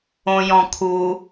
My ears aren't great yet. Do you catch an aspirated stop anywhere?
yes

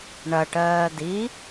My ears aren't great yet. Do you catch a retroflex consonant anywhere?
yes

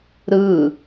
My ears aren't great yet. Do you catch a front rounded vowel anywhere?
no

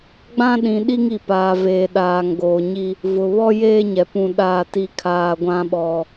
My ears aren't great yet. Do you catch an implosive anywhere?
yes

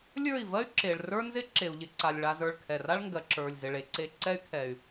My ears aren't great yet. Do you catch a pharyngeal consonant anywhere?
no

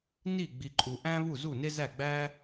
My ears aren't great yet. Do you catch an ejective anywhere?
yes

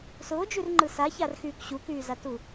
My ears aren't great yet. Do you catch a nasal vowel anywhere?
no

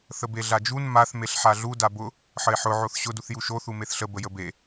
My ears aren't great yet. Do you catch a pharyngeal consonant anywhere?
yes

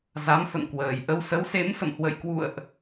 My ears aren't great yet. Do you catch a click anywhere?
no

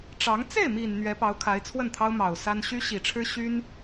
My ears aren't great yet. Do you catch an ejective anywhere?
no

